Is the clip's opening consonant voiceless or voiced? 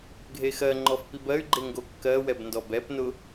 voiced